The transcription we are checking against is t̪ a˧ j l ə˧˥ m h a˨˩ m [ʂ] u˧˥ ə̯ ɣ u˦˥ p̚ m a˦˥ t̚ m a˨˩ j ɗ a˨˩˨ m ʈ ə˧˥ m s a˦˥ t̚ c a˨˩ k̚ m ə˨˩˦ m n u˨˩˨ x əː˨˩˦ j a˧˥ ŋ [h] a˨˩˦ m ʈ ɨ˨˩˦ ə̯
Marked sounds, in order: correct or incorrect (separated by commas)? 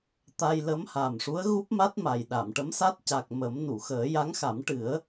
correct, incorrect